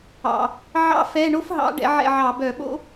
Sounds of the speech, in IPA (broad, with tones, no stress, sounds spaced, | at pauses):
ɑ̰˩ | ʕ ɑ̰˥ f ɛ˧˥˧ ɳ o˥ f ɦ ɑ̰˨˥ ɖ ɛ̰˨˥ ʕ ɛ̰˥˨ ʕ ɑ˧˩˧ b œ˧˩˧ ɓ o̰˥